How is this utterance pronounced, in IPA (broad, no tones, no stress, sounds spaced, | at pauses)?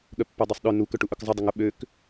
ɠ œ pː œ dˤ œ sˤ ɗ œ n u k œ ʈ u ʔ œ k zˤ ɐ dˤ ə ŋ ʊ ɓ ø k